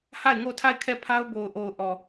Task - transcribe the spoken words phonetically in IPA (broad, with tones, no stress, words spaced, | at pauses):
ha˦˨ɪ̯ŋo˦˨tʰa˦˨ɪ̯ kʰɛ˦˨pʰa˦ʊ̯ bo˨ʊ̯ʔo˨ʊ̯ʔɔ˨